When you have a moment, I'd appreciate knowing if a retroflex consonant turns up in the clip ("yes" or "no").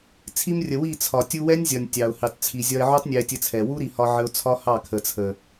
no